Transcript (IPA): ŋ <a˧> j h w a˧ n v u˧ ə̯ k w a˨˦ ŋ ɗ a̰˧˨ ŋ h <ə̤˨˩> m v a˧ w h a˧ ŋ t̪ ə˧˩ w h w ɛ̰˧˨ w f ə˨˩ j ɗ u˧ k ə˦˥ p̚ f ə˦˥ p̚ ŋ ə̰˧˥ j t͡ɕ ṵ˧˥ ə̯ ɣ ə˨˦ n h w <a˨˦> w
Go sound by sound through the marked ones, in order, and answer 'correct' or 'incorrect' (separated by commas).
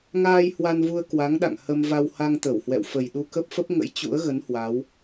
incorrect, incorrect, correct